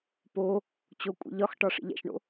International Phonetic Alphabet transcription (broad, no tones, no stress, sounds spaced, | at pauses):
p o | t͡ɕ o kʷʼ ḭ ʎ ɒ x ʈ ɒ ʂ ḭ ʎ æ̰ ʃ ɳ o̰